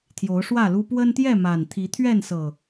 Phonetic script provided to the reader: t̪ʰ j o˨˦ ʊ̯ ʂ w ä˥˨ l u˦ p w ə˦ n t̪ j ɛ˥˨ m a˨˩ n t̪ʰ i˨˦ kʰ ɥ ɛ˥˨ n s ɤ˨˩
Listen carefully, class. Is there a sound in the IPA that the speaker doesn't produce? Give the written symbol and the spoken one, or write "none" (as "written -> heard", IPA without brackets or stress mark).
kʰ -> t̪ʰ